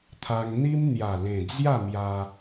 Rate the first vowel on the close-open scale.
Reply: open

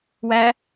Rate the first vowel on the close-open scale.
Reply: open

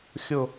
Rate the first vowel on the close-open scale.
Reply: close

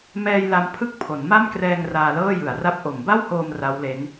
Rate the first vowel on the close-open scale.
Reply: mid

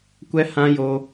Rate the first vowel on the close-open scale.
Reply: mid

